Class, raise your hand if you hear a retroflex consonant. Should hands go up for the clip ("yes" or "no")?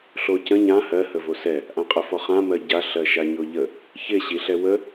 no